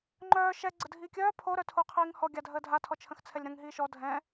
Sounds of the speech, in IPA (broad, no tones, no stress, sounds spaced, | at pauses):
ŋ͡ǃ œː ʃ ɛ ɡ͡ǀ ə dʱ iː kʲ œː pʰ o ɾ œ tʰ o qʰ iː ŋ h ɔ ɡʲ a dʱ əː dʱ a tʰ ɔ t͡ʃʰ ə̃ x t͡sʰ ɛ lʲ ɾ ə̃ ŋ ɦ iː ʃ ɔ dʱ ɛ̃